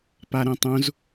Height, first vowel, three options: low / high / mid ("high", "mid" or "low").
low